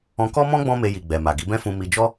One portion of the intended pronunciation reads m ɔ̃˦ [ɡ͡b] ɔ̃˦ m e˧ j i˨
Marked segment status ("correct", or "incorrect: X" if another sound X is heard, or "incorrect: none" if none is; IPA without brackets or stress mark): correct